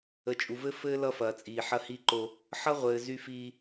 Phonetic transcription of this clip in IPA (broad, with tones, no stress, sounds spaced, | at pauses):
ə˨ t͡ʃʼ u˨ v ɘ˦ f ɘː˦ l ʌ˦ f ɐː˨ t͡sʼ iː˨ ħ ɐ˦ h i˦ ǃ o˦ | ħ ʌ˦ ʁʷ ɘː˨ z y˦ f iː˦